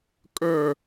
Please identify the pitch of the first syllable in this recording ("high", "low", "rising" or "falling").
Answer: falling